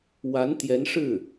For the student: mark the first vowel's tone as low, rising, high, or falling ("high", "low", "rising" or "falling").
rising